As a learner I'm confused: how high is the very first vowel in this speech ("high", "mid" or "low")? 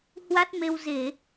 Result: low